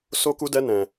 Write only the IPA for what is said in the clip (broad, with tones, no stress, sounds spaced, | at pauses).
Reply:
s o˦ k u˦ d ɛ˦ n ɛ̃˧